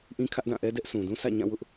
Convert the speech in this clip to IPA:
ʔ ĩ˦ kʰ ä˦ ʔ d ã˦˨ ʔ ɛ˦ d ɛ˦ ʔ s ũ˨ d ũ˦ s ä̰˦˨ ɲ ã˦˨ w ʊ˦ ʔ

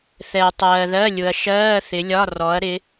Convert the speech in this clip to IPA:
θ ɛ˨ ɐ̯ tˤ ɜː˨ ð ɜ˧˥˧ lʲ ʊ˨ ɐ̯ ʃ ɜː˧˥˧ θ ɪ˨˦ lʲ ɒ˧˥˧ r ɔ˨˦ ɐ̯ ɾ ɪ˨˦

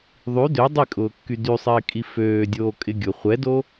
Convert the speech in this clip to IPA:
ðˤ y d ø dˤ i kʼ ʊː kː y d y sˤ ɪː kʼ i f øː dʲ oː kʼ ɪ ɡʲ ʊ χʷ ɛ d o

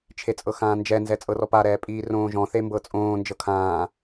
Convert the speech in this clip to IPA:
t͡ʃʰ e t͡sʼ ɤ x ãː n d͡ʒ ɛ n z ɛ t͡sʼ ɤ r ɔ p a ɾ ɛː pʼ iː r õː ʒ ɔ̃ θ e m b ɤ t͡sʼ õː n d͡ʒ ɤ kʰ ãː

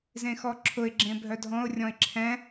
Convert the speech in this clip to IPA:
z ẽ x ɔ ǁʰ ʊ ɪ̯ ɡ͡ǁ ẽ bʱ œ dʱ ɔ̃ ʊ̯ rʲ ɔ̃ ɪ̯ ǁʰ ɛ̃

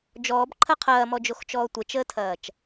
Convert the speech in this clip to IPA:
d͡ʒ ɔː b ǃʰ ɐ qʰ ɐː m ɔ d͡ʒ o x t͡ʃ ɔː tʷ ə t͡ʃ əː tʰ ɐː t͡ʃ

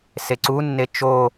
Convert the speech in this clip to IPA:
s e ǀ u nː e t͡ʃ o

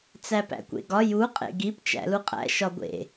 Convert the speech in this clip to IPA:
t͡s æ p æ̰ kʷ ḛ ɡ ɒ j u qʼ ḛ ɡ i p t͡ʃ æ̰ l u qʼ æ̰ ʃ ɒ ɡʷ ḛ

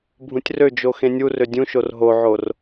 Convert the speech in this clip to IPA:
bʱ ũ tʲ r ø d͡ʒ o x ẽ nʲ u r ø dʲ ũ ʃ o r ɦ o ʕ o r

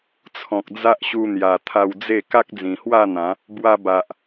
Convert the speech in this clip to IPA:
t͡sʰ ɔ̃˨ k̚ d͡z a˦ ʔ ɕ u˧ n̪ j a˨˩ t̪ʰ a˧ w d͡z e˥˧ k a˦ k̚ d͡z ĩ˨˩ h w a˥˧ n̪ ã˨˦ | b w a˧ b a˨ ʔ

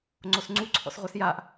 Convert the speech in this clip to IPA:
ŋ͡ǀ o s ŋ͡ǀ u ǀʰ ɔ̰ s ʁʷ ɛ s j a ʔ

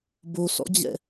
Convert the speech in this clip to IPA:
b o s ɔ̰ d͡ʑ ɛ̰

